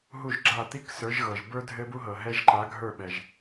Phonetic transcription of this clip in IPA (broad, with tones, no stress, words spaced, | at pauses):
ɦu˥˨ʒɡ͡ǁa˥˨ t̪i˥ksə˞˨˦ʒɣɤ˩ʒbə˞˥ dʱɘ˥bu˥ɦɤ˩ɦɛ˥ʒ ǃa˨˦ɡʱə˞˥˨ɓɛ˩ʒ